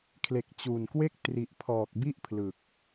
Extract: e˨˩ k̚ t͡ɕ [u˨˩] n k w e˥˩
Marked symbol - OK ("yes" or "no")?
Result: yes